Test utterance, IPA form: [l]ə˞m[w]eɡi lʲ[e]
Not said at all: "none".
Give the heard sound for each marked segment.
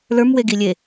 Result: l, w, e

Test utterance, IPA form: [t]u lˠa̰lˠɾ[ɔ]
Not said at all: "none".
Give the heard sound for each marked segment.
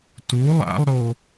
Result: t, o

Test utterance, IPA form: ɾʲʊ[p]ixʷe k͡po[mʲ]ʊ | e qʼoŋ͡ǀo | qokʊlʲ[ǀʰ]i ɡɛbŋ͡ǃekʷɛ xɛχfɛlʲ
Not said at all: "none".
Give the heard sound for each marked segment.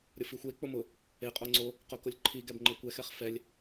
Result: f, m, ǃʰ

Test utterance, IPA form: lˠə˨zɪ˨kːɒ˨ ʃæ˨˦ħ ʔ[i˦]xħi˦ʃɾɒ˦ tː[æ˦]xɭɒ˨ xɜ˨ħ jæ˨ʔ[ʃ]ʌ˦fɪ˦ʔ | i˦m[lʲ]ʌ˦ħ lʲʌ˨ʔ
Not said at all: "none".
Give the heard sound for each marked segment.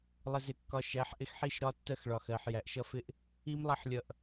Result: ɪ˦, ɜ˦, ʃ, lˠ

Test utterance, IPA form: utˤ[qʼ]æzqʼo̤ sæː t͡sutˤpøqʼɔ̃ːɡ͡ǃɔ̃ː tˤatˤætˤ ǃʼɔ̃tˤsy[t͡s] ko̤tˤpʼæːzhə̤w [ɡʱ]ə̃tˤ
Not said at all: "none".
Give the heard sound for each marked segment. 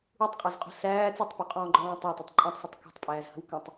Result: qʼ, tˤ, k

